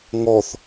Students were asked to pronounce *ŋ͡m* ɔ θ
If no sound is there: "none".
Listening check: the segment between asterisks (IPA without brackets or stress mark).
ŋ